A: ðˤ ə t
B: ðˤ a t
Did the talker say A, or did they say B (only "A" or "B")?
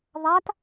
B